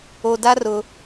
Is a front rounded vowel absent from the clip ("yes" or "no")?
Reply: yes